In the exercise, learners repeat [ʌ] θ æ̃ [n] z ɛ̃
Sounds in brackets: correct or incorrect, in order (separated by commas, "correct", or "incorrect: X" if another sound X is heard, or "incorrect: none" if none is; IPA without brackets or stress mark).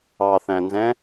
incorrect: ɑ, correct